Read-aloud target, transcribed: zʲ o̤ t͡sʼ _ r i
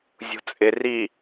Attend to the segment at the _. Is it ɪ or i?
ɪ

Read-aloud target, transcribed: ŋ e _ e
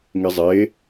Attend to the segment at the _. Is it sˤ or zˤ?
zˤ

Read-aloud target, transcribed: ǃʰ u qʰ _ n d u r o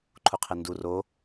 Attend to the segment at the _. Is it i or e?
e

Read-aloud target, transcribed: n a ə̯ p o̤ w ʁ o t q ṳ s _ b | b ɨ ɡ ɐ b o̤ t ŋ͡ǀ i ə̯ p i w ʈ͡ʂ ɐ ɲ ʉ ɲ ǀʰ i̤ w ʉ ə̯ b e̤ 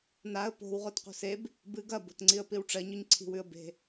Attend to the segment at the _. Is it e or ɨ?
e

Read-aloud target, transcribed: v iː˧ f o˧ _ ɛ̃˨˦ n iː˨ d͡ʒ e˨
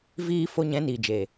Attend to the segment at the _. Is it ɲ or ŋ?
ɲ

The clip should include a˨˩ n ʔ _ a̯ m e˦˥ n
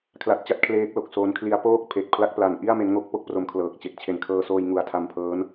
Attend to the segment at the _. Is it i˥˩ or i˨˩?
i˥˩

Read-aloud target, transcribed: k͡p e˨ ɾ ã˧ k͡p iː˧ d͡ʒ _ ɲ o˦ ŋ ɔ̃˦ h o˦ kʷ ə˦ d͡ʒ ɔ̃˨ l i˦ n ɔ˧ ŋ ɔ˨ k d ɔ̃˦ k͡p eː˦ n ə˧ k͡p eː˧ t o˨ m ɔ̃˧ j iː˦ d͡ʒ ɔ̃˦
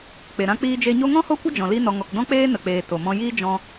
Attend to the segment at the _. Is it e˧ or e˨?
e˧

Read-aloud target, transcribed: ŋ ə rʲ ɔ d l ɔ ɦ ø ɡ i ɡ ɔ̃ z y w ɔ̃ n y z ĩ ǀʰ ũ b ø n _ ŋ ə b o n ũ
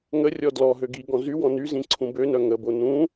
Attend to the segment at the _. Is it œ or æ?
œ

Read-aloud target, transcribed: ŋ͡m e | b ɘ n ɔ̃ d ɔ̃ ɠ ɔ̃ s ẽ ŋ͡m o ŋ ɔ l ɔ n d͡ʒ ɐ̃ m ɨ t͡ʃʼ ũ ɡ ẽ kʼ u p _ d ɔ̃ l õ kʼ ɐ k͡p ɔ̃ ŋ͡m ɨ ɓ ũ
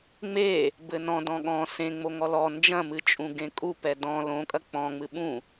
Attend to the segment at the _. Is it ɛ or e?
ɛ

